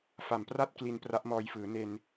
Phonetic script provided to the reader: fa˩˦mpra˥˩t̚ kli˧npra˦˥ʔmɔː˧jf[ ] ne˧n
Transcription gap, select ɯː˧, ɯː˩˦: ɯː˩˦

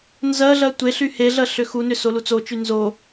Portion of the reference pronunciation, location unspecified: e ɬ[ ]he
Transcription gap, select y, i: y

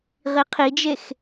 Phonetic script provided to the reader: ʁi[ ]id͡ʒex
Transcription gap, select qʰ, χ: qʰ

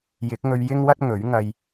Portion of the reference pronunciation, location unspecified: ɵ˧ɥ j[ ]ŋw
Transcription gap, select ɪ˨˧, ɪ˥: ɪ˥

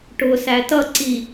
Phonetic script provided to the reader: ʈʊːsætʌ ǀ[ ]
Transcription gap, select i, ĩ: i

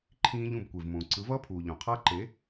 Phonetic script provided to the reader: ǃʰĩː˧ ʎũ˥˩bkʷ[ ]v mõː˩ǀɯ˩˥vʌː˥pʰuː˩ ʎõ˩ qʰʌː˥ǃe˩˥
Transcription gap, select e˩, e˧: e˩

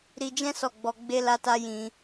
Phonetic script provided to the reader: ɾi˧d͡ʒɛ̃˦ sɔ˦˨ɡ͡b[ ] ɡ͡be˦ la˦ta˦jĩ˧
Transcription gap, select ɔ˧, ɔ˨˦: ɔ˧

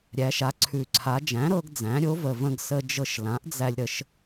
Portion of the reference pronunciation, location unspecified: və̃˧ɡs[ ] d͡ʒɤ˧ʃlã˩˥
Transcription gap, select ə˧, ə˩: ə˧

